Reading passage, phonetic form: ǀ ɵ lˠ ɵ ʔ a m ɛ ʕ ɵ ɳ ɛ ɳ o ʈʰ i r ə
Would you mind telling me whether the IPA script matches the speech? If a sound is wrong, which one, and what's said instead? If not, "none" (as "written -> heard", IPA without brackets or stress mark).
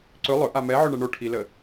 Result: r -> l